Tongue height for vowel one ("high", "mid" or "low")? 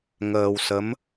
mid